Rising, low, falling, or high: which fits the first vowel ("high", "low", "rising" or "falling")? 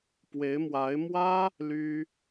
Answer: rising